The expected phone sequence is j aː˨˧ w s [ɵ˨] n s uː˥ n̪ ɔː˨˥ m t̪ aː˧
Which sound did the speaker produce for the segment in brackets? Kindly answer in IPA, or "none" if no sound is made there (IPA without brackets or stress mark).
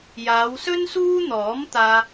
ɵ˥